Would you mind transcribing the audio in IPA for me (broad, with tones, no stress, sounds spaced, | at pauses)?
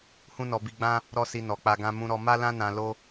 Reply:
h ũ˦ n ɔ˧ b i˧ ɡ͡b ã˦ | ɾ ɔ˦ s i˧ n ɔ˨ k͡p a˧ ɡ ã˧ m ũ˧ ɾ ɔ˧ m a˦ l ã˦ n ã˧ l o˦